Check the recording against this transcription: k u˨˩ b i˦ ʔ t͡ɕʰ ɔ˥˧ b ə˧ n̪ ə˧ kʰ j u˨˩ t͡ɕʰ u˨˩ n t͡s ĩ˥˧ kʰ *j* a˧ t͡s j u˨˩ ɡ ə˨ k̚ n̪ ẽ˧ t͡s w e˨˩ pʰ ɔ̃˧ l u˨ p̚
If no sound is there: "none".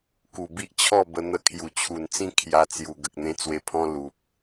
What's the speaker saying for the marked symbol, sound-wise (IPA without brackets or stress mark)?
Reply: j